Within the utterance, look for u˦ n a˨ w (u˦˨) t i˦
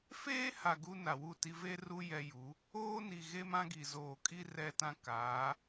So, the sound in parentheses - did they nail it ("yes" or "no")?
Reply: yes